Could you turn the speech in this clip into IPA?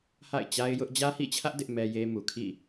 ha̰˦˨ɪ̯t͡ɕa˦ɪ̯ jʊ˦ʔ d͡ʑä˦hḭ˦˨t͡ɕʰä˦ʔ dɪ˦ʔmɛ˦je˦ mu˨kʰḭ˦˨

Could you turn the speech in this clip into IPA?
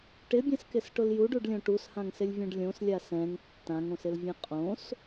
ʈɪbʲɛ̃skɪsʈʊl juɖuɖlʲõ ʈushãŋsɪlʲvʲũɖ lʲõslʲa sɛ̃ŋ tːãŋõsɪlvʲɛ̃ qʼõs

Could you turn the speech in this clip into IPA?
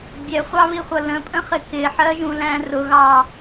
bʲɛχʷɑβiχʷʌ lə̃pʼə̃χɪ kɪħɜʒũlæ̃ rʊɣɑ

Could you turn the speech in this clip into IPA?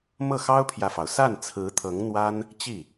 mɤ˥˩xɑ˥ʊ̯pʰjä˨fɑ˩ʊ̯ sa˥˩nt͡sʰɹ̩˧˥t̪ʰɤ˧˥ŋn̪wa˥n | t͡ɕi˥˩

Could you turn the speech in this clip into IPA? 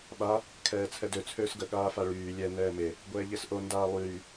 ɓa | kʰɛːt͡sʰɛdø t͡sʰøːsɡə ɠaːfaɭyː lʲɛ nɛːme | ɡʷɛːʎesʔo ndaːlˠyː

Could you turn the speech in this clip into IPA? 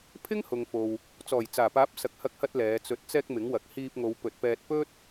pʰɪ˥ŋhʊ˨ŋfo˨w | t͡sɔː˨˩jt͡saː˨˩paː˨˥p̚ sɐ˨k̚hɐ˧k̚hɐ˧t̚ lɛː˨˧t͡sɵ˧t̚ t͡sɛː˧k̚ mɪ˨˥ŋwɐ˨˥k̚ hiː˧p̚ŋo˨˧wpɵ˨t̚pɛː˧t̚ pɵ˥t̚

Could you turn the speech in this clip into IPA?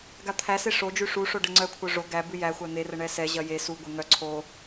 ɡat̪ʰæse ʂo d͡ʒʉʂuʂo ɖəŋ͡ǀœkʷʰœ ʐo ɡæbʉ jæxʷæ n̪erə ɳɛsɛʑɐ je suɡʷe ŋœ ǀʰo

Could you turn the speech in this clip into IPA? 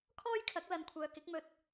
kʰɔː˥jkʰɐ˨˥k̚ lɐ˨˧nkʷʰœː˨kɪ˨˥k̚mɵ˧t̚

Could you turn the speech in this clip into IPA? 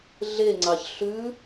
ɮeŋ͡ǀɑç ɬʉ

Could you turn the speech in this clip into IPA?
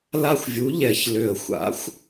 la˦˨xʷvʲu˨˥ʎɛ˧˩˧ç lʏ˨˩ə̯xʷa̰˨˥xʷ

